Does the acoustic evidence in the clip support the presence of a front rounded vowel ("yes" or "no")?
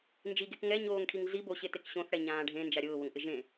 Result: no